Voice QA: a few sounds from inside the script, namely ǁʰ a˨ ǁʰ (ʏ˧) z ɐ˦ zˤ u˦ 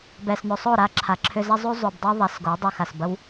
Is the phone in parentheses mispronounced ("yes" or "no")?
no